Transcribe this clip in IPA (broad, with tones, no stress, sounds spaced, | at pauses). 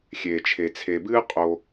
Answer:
xʲ eː˩ t͡ʃʰ e˩ t͡sʰ e˩ b ɨː˥ qʼ o˨